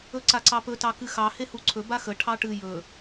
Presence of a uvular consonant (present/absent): absent